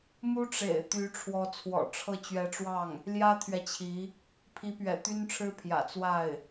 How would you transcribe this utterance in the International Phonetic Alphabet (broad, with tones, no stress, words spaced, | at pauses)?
mu˥ʈ͡ʂḛ˨˩ɪ̯ t̪y˧˥ʈ͡ʂʰwɔ˧˥ t͡sʰwɔ̰˨˩ʈ͡ʂʰɤ˥˩ t͡ɕɥɛ˧˥ʈ͡ʂwɑ˥˩ŋ | ljä˥t̪ʰɥɛ˨t͡ɕʰi˧˥ | pʰi˧˥pɥɛ̰˨˩t̪y˥n ʈ͡ʂʰɻ̩˥pʰjä̰˨˩ t͡swa˥˩ɪ̯